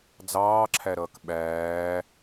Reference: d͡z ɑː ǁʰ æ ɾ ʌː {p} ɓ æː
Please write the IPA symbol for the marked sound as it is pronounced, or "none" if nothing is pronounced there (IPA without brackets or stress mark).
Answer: k